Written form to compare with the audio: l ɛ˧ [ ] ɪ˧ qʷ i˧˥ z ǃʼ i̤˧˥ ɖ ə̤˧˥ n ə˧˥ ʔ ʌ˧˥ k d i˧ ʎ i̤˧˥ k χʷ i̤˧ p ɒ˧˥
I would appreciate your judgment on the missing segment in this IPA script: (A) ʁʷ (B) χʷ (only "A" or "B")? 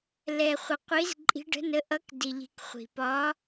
B